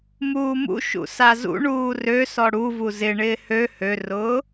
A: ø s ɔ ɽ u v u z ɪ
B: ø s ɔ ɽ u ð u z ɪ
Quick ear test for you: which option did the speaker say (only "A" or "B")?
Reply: A